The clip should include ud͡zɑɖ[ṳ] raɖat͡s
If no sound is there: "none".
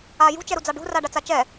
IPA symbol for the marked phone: ṳ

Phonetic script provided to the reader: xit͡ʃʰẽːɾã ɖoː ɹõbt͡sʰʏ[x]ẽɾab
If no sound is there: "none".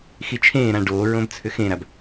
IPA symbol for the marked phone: x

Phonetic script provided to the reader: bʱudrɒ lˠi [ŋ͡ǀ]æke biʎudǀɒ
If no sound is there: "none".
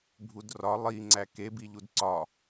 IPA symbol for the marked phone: ŋ͡ǀ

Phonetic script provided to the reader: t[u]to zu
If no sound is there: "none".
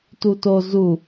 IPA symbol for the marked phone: u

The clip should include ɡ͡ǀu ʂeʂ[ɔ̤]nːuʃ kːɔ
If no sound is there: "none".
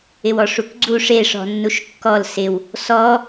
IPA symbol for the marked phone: ɔ̤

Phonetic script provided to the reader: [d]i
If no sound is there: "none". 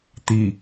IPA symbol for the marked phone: t̪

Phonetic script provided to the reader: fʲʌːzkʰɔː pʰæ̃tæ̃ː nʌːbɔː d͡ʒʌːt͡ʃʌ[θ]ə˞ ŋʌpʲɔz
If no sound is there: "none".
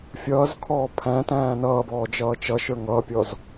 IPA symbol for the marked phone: ʃ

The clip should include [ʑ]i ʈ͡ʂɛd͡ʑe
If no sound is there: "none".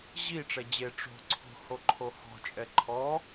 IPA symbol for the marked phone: ʑ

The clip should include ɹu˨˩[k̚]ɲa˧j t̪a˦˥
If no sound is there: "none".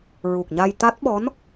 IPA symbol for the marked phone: k̚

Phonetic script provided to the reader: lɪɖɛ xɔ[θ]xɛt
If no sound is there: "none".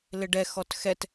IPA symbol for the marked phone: t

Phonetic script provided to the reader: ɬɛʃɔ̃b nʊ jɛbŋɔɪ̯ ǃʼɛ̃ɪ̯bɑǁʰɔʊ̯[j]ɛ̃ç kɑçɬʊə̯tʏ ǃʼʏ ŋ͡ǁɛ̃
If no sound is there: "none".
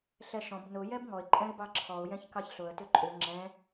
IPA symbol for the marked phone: j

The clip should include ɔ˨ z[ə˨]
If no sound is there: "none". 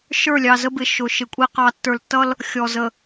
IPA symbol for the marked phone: ə˨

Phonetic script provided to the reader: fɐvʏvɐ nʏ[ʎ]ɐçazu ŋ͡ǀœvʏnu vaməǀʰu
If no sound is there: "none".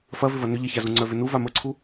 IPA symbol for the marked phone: ʎ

